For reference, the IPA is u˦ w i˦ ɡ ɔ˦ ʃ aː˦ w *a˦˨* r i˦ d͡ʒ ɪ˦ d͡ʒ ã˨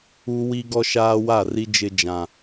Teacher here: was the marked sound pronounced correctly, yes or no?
yes